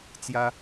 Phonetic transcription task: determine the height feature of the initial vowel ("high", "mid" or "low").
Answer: low